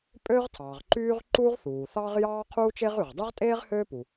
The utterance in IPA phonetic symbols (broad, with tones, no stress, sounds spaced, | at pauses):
pʼ øː˥ ʁ tʰ ɑː˩ ʁ ǃ yː˥ ʁ ǃ uː˥ ʁ θ uː˩ θ ɑː˥ ʁ j ɑː˥ qʰ uː˥ t͡ʃ e˥ ʁ y˩ ʁ dˤ ø˥ ʁ tʼ eː˥ ʁ h øː˥ p u˩